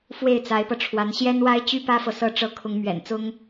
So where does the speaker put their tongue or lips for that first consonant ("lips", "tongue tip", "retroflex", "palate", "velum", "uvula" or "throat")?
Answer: lips